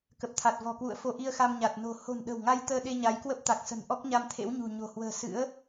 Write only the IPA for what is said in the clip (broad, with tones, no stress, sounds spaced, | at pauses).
k ə˨˩ p̚ t̪ʰ a˨˩ t̚ v ɔ̤˨˩ k w ṵ˧˨ ə̯ f o˧ ʔ i˧ ə̯ x a˧ m ɲ a˨˩ t̚ n o̤˨˩ h o̤˨˩ n ɗ ə̤˨˩ w ŋ a˧ j t̪ əː˧ ɗ e˧ ɲ a˨˦ j k w ə˦˥ p̚ t̪ a˨˩ k̚ s ə̤˨˩ n ʔ ɔ˦˥ k̚ ɲ a˧ m t̪ʰ ḛ˧˥ w ɲ ṳ˨˩ ɲ o̤˨˩ h w ə̤ː˨˩ s ɨ̰˧˥ ə̯